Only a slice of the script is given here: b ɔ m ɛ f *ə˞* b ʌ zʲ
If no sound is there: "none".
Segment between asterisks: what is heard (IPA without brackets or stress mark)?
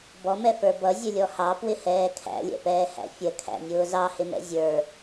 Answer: ə˞